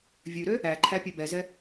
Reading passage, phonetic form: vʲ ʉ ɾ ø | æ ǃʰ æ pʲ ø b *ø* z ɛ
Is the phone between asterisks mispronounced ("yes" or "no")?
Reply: yes